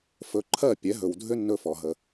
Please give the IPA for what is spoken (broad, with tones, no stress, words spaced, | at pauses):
fɵ˩˥ǃʰɜ˥˩ pʲɛ˩˥ɦɵ˩w dʱʏ˥nːɵ˧fɔ˩ɦə˩